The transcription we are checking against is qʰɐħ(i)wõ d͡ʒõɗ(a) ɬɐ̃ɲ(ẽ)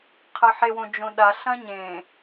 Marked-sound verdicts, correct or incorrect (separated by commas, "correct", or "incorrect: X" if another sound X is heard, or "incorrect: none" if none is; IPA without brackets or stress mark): incorrect: e, correct, correct